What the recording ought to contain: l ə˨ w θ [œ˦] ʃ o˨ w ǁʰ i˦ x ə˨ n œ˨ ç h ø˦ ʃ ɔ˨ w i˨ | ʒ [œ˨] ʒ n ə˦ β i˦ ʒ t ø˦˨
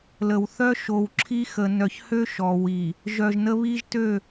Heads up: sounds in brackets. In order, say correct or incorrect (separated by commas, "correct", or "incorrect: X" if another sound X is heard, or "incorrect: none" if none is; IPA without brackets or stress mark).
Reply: correct, correct